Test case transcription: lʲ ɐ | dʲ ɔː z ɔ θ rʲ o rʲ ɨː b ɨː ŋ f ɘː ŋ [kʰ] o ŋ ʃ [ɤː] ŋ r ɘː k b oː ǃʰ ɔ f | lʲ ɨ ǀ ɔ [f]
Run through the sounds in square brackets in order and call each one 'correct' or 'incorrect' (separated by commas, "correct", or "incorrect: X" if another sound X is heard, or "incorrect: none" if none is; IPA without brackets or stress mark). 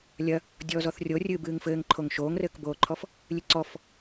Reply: incorrect: ǃʰ, incorrect: oː, correct